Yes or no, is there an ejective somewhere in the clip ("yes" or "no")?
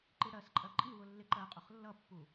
yes